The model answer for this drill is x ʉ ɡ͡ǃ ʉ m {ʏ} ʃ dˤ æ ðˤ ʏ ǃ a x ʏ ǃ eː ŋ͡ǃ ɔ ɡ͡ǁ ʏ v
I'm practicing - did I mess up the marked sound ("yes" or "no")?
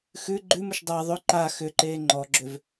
no